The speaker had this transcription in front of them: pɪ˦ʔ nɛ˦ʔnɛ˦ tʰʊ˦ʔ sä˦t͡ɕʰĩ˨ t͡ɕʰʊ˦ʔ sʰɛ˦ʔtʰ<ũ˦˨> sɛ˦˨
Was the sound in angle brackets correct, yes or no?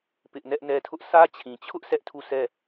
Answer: no